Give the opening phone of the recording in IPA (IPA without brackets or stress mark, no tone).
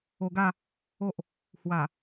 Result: o